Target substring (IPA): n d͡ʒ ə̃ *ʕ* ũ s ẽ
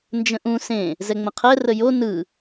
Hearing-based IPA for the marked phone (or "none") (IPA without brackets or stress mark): ʔ